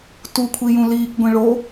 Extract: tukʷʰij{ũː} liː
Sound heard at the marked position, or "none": ũ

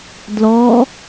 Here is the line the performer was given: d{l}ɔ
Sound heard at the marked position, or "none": l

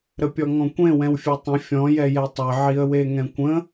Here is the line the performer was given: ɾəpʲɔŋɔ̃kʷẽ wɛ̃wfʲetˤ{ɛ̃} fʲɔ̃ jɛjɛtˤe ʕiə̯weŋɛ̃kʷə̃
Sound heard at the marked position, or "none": ə̃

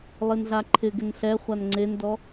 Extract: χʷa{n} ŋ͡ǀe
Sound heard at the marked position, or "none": n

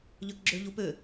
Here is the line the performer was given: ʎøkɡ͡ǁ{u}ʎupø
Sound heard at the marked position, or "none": ø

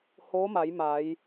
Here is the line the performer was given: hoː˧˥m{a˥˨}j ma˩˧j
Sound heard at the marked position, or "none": a˩˧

